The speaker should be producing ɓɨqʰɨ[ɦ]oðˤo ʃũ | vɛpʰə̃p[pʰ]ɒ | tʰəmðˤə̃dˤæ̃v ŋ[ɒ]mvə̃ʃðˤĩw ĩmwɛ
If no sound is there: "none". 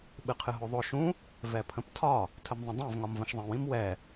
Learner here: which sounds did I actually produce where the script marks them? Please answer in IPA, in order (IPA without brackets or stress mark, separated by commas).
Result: ɦ, tʰ, ɒ